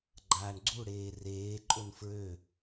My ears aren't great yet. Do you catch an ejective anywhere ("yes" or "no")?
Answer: yes